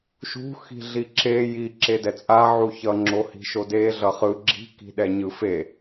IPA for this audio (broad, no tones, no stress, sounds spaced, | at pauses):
ʃ ṳ x i̤ ɮ i ǁ e j i ǁ e d ɛ t͡sʼ a ʕ u ç ʌ ŋ͡ǁ o h i̤ ʃ o d e ɮ ʌ χ ɯ ɡ͡ǁ i̤ k i̤ ɗ ɛ ɲ ɯ f e